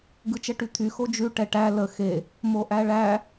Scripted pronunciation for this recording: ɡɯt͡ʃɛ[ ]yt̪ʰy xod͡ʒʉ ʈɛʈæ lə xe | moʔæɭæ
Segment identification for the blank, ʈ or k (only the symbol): ʈ